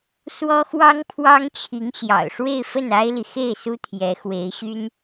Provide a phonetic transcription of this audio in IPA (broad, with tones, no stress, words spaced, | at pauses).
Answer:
swɔ˥xwɑ˥ŋpʰwɑ˥ŋt͡ɕʰi˧˥ŋ ɕjɑ̰˨˩ʊ̯ʂwe˥˧ɪ̯ fə˥˩na˥ɪ̯li˨ xe˥˩ɪ̯su˥ t̪ʰjɛ˧˥xwe˧˥ɪ̯ɕy˥n